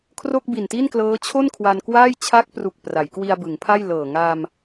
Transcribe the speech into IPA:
kʰ r o˥˩ k̚ b i˨˩ n t i˥˩ n k l ɤː˦˥ t͡ɕʰ o˥˩ n kʰ w a˧ n k w aː˥˩ j t͡ɕʰ a˦˥ k̚ p r u˨˩ k̚ p r a˩˦ j k w i˧ a̯ b ɯ˩˦ ŋ pʰ a˥˩ j l ɤː˨˩ ŋ a˧ m

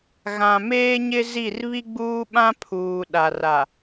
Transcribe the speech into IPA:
ɣ ã˨ m eː˦ ɲ ɪ˦ z i˦˨ r β i˦ ɡ͡b uː˦ ɓ ã˦ pʰ uː˨ ɗ a˨ r a˨

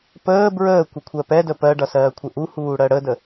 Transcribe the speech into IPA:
p əː b ɹ əː kʷ ɘ kʷʰ ɜ p ɛ d ə p ɜ ɖ ʌ s ɜː kʷʰ ɘ ʔ u h uː ɽ ɜ ɽ ə d ə

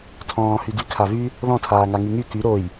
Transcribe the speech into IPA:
tʰ ɔ̃ː h y d y kʰ a v y | ð ɔ̃ tʰ aː ŋ a ŋ y ŋ y k y ɾ o j

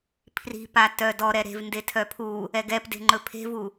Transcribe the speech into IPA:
pʰ r i̤ p a t œ d ɔ ɾ ɛ ɾ e̤ v n d e tʰ œ pʰ u | ɛ ɡ ɛ p d e̤ ŋ͡ǃ ɵ pʰ e̤ v u

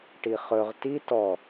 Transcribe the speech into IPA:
ʈ i χ ɵ ʁ t i t ɔ

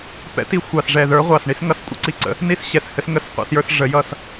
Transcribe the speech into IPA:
p ɛ̰˨˥ t i˨˥ xʷ ɑ˨˩ s ʐ ɛ˨˩ ð ə˞˨˥ ʁʷ ɑ˨˩ s ɳ i˦ s ŋ ʌ˨˥ s kʷʼ ə̰˨˥ ǀ i˦˨ ǀ ə̰˨˥ | n i˦ s ɕ ɛ˨˩ s h ɘ˦ s ŋ ə˦˨ s qʷ ɑ̰˦ s j ə˞˦ s ʐ ə˨˥ j ʌ˦˨ s

